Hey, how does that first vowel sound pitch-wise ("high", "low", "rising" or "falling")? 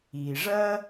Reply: low